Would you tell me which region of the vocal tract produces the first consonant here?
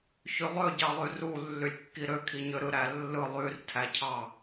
palate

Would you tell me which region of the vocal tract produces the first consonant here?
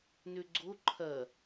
tongue tip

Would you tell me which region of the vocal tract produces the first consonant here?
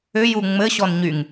palate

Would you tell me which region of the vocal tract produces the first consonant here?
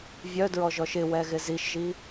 lips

